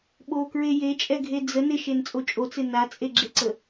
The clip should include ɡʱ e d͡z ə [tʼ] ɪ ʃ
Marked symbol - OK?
no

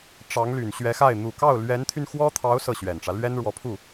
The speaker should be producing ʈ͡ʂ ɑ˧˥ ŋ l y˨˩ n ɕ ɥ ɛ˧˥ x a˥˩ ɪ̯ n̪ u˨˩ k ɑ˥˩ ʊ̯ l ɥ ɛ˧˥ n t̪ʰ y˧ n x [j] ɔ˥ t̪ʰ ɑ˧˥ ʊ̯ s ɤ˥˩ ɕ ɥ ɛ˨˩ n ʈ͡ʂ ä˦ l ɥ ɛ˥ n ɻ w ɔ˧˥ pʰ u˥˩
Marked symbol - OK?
no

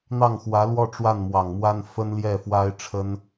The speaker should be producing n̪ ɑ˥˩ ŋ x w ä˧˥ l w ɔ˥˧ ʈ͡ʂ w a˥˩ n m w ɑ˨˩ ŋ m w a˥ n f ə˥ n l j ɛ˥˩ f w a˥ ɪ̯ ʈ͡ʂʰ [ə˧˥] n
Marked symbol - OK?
no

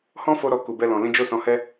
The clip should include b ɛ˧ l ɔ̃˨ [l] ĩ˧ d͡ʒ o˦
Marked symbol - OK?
yes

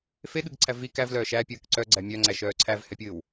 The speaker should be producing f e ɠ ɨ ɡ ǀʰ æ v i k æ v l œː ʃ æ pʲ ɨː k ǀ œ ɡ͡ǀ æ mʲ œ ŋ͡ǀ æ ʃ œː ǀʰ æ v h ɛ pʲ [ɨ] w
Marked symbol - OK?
no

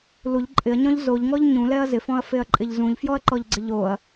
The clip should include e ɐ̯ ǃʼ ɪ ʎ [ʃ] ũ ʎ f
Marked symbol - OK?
no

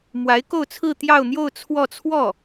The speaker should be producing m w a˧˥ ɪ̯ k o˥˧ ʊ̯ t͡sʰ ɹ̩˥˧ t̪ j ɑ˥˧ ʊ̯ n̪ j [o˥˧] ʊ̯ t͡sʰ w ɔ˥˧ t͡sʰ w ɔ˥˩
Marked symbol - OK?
yes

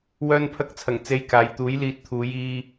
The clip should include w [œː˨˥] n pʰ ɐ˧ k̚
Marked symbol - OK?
no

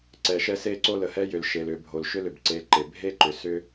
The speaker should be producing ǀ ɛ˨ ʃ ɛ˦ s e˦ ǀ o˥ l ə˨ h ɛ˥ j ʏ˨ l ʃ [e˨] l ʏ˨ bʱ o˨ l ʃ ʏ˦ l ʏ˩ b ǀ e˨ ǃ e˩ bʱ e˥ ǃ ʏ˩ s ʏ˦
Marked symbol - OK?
yes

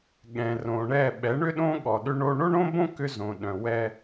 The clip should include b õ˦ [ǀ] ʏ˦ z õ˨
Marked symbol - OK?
no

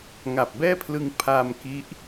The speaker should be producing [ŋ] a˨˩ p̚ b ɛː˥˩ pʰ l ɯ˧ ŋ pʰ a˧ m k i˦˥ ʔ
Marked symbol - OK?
yes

